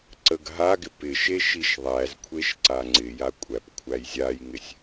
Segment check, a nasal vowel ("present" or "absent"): absent